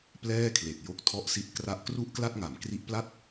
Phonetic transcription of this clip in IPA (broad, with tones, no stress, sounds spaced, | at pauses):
p l ɛː˥˩ kʰ l e˨˩ k̚ j o˦˥ k̚ tʰ ɔ˦˥ ʔ s i˦˥ t̚ k r a˦˥ ʔ k r u˥˩ ʔ k l a˥˩ t̚ ŋ a˩˦ m k r i˦˥ ʔ p l a˥˩ t̚